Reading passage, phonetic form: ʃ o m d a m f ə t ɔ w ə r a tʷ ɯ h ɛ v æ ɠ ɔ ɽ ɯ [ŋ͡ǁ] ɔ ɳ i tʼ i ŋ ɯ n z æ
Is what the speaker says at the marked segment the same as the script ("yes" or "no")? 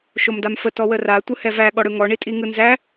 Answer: no